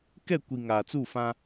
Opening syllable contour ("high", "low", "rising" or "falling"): falling